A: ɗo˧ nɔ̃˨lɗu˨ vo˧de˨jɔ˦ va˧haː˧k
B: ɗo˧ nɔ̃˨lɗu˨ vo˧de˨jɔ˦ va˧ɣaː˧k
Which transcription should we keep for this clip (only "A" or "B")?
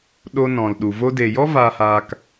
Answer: A